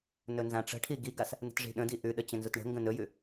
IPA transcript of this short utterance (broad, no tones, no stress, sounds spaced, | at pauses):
n ɵ n z ã ʈ͡ʂ ə̤ ʈʰ i ɡ i ɡ a s | n ə̤ t ʐ i̤ ɗ ə̃ d i ʔ ʉ ɗ ə t͡ɕ ə̃ n z u t ɳ ə̤ ŋ ɡ ə̃ n ɵ j ʉ